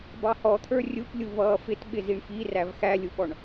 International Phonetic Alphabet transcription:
bɑhɔt̪ʰə˞ rʲuplʲu vʌːfɪt ɓɪziɳfiræv xælʲuɓɔɳ

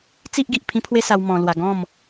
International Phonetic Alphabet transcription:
t͡si˦ʔɡi˨ʔ pʰĩ˦pʰwe˦sa˧w mɔ̃˧lwa˧ ɡɔ̃˥˧m

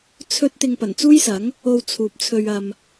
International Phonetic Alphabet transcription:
t͡sʰɵ˥t̚ t̪ɪ˧ŋpɐ˨˩nt͡suː˥jsɐ˨˥ŋ | o˧w t͡sʰuː˨p̚t͡sʰɵ˧ɥ ɐ˨m

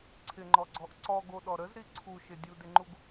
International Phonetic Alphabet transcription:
ǀʰɪŋ͡ǃɔɡ͡ǀɔʔ ǀɔɡoɗɔ ɾəzɾi ǀʰuʃɪ dʲudɪŋ͡ǃuɡ

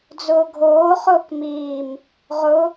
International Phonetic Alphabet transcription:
d͡zʊːɡʱoː χʊːkmiːm | ʁʊ

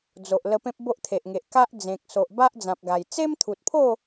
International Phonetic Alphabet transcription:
d͡zo˨ʔ lə˧pẽ˦p̚ bo˦ʔt̪ʰe˨ʔŋe˨ʔ ka˦ʔd͡zẽ˨k̚ so˨ʔ ba˦ʔd͡zã˨p̚ɡa˨˩j t͡se˦mt̪ʰu˨t̚pʰo˥˧

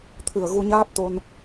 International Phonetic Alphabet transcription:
t̪ʰɨ˨˩ə̯ ɣu˧ɲaː˦˥p̚t̪o˧n

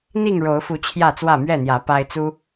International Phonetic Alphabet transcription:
n̪i˥˨ŋɻo˨˦ʊ̯fu˨˦ t͡ɕʰjä˥˨t͡swä˥˨ mɥɛ˥˨n̪jä˨˦ pa˦ɪ̯ t͡su˦

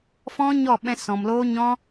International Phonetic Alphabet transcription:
fɔ̃˦ɲɔ˦˨ɓɛ̃˧sɔ̃˨m loː˦ɲɔ̃˦

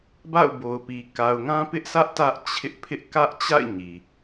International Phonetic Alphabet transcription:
ba̰˦˨ʊ̯bo˨ʊ̯pi˨ ka˨ʊ̯ŋã˦pɪ˦ʔsʰä˦ʔ tä˦ʔt͡ɕʰɪ˦ʔ pʰɪ˦ʔ kä˦ʔt͡ɕa̰˦˨ɪ̯ ɲi˨

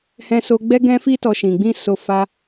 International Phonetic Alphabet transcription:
hɛ̃˦so˦ ɡ͡bɛ˦ɡɛ̃˦fi˦ tɔ˦ʃĩ˧ ɡ͡bĩ˦ so˦fa˦

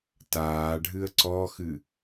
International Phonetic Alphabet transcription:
taːɖʱɨə̯ ǀɔxɨ

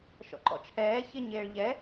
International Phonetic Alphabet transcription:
ʃɔ̰ǃɔ̰t͡ʃʰɛː çɪ ɲeːɭʎɛ

